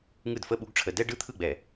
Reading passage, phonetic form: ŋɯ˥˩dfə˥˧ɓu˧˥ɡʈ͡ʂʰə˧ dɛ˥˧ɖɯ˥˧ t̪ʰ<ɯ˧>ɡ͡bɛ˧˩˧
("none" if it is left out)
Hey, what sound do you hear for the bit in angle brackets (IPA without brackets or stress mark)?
ɯ˥˩